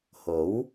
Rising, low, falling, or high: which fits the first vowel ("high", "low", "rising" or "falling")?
rising